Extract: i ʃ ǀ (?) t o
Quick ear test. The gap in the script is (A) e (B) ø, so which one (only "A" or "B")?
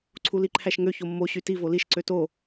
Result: B